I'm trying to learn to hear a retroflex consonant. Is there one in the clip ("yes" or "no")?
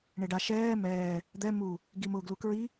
yes